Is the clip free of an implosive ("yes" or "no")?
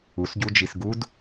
yes